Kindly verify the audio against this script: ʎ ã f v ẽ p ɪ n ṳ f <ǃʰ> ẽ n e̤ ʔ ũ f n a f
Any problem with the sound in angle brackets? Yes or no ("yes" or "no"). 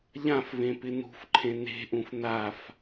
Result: no